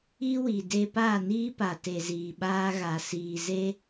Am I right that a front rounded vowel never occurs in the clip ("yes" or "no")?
yes